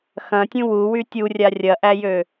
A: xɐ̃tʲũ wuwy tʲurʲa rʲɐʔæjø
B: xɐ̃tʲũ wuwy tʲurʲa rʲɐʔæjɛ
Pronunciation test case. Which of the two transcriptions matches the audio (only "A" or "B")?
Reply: A